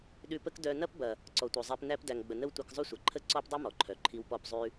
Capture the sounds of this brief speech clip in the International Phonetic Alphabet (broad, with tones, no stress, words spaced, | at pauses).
ɗʉ˧pə˦k dœ˧nɐ˦p bɐ˨ | ǀɔ˨tʷœ˨zˤæ˧p næ˧pdæ˨ŋɡ͡bə˨ nə˦wtʷɐ˧kzˤʉ˦sʷɐ˨ ǃʰə˦ ǀɔ˦pdˤʉ˦mɔ˨ǃʰœ˨ ǃʰi˧wpɔ˦˨pzˤʉ˦